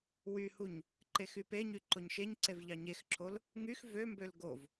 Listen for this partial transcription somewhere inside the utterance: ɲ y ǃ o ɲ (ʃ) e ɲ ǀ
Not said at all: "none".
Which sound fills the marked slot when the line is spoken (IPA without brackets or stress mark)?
ʃ